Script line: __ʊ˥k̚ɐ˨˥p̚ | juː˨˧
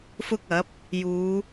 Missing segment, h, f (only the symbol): f